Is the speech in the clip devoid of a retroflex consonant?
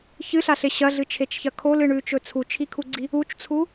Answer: no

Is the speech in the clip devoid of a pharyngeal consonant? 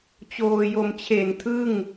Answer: yes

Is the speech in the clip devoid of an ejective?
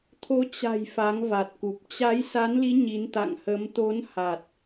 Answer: yes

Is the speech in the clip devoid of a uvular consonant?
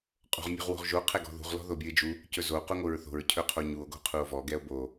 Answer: no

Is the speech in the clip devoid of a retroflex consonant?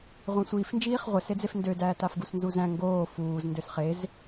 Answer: yes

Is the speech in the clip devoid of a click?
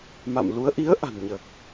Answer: yes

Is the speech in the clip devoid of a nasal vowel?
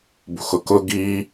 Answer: yes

